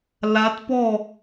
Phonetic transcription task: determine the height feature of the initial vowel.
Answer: low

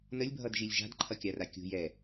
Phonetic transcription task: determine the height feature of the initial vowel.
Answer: mid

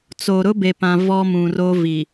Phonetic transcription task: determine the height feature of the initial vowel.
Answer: mid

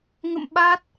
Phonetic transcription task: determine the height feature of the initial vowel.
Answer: mid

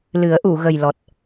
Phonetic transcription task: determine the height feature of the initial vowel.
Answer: high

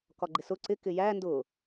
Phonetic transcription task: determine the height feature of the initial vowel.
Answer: low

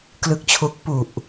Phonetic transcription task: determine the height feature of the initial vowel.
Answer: high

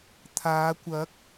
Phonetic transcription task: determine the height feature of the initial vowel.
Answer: low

